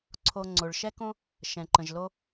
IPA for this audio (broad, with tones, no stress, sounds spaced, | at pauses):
ǀʰ o˧ ŋ͡ǀ o˩ ɭ ʃ ɛ˥ k õ˥ | ʃ ɛ̃˩ ǃ ə̃˩ ʒ l o˥